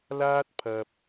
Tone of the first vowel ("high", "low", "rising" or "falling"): high